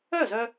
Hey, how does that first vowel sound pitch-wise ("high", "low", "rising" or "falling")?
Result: falling